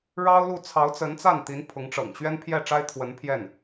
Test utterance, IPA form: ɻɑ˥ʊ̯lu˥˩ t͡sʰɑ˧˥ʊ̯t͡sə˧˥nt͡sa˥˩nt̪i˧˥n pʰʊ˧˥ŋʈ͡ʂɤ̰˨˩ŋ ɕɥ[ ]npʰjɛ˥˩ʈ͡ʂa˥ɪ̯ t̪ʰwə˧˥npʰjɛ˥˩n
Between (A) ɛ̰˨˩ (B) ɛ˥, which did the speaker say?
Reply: B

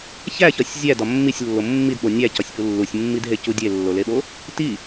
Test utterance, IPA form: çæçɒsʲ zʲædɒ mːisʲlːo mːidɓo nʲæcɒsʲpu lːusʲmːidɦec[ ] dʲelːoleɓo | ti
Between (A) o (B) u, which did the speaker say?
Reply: B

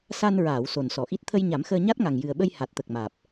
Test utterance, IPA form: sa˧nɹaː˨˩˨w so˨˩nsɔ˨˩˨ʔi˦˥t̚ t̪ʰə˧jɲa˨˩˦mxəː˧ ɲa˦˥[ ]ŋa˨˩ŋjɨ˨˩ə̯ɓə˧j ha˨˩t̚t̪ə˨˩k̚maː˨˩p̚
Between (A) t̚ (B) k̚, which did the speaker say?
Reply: A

